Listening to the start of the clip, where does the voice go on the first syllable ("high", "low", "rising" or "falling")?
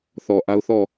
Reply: low